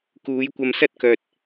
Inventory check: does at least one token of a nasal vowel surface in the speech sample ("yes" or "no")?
no